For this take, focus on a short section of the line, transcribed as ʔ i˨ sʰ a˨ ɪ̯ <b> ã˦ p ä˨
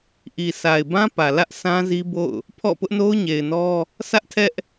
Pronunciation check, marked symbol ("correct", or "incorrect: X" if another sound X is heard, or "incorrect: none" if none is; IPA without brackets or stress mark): correct